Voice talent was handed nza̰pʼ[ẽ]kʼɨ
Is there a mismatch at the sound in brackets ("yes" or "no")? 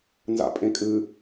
no